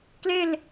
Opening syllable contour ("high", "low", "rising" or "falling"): falling